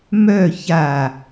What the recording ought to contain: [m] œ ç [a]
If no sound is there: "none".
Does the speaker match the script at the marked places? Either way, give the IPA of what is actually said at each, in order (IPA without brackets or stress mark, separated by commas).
m, a